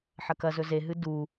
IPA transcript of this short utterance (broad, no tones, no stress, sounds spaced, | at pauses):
ħ ɐ k ɐ z ɵ z e ɦ ɨ d u